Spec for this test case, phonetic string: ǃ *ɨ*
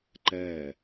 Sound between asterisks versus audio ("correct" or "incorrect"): incorrect